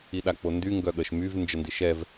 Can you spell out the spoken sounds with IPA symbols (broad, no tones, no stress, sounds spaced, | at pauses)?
i ɗ a k͡p o n d y ŋ ɡ œ ɠ ə ʃ m y v n d͡ʒ ə n d i ʃ ɛ v